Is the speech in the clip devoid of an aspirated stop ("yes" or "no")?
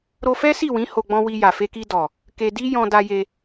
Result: yes